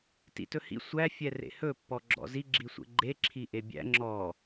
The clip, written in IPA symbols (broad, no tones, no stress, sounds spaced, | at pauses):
t ḭ t ɵ h ḭ sʷ æ fʲ ɛ r ḛ h ɵ pː ɔ ɡ͡ǁ ɔ̰ z i ɡ͡ǁ i sʷ ḛ ɡ͡ǃ e ǁʰ i ʔ e bʲ æ̰ ŋ͡ǁ ɔ